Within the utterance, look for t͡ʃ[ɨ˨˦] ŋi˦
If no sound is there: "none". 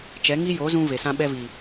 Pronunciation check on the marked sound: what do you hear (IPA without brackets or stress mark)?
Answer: ɛ˨˦